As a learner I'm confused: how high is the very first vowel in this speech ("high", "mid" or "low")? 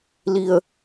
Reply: high